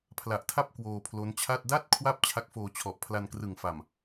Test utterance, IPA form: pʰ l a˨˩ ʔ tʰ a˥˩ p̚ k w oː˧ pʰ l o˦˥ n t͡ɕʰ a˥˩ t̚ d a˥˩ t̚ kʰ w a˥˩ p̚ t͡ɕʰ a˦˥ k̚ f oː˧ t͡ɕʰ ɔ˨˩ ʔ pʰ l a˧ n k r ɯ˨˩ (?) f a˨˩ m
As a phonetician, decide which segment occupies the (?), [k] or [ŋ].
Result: ŋ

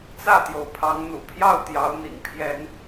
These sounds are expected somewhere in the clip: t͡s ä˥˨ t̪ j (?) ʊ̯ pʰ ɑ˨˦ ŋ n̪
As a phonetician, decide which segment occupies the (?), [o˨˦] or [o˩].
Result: o˩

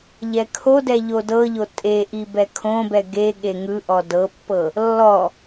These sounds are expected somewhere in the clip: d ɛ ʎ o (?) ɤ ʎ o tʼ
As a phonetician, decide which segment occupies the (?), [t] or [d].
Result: d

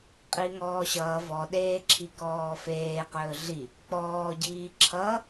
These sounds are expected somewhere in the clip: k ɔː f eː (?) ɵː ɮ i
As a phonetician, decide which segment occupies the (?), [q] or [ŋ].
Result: q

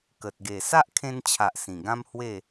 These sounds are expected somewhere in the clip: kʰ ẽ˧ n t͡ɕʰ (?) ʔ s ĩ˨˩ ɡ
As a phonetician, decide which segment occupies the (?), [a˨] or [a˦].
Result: a˨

